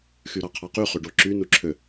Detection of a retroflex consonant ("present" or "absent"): present